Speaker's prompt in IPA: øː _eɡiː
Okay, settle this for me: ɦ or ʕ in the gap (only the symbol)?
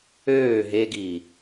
ɦ